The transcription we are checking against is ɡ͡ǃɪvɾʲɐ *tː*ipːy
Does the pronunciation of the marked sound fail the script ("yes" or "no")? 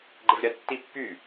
no